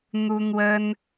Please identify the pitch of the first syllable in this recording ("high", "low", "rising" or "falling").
high